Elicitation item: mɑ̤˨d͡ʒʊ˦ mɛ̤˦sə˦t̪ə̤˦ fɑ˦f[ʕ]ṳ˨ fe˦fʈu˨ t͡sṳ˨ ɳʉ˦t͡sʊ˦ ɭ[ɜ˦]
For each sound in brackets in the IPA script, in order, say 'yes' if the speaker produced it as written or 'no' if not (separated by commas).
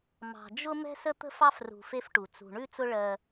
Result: no, yes